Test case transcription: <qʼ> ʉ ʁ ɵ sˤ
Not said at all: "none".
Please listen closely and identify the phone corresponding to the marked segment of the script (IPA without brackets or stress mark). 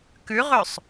k